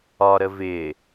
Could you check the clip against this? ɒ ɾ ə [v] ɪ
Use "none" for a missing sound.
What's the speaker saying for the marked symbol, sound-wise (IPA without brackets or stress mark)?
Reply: v